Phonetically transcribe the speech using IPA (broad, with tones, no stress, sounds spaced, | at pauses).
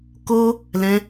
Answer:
k o˦ | l ɛ̃˧